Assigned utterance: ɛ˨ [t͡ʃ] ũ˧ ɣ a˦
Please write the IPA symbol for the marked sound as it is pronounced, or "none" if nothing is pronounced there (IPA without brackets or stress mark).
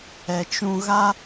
t͡ʃ